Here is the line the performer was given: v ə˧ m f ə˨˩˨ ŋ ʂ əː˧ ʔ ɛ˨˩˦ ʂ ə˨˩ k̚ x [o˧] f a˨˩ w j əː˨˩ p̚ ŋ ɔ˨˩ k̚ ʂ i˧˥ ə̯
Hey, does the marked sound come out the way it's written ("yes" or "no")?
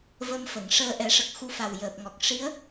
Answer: no